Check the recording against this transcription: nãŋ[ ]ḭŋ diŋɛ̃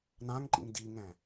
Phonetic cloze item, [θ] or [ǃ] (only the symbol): ǃ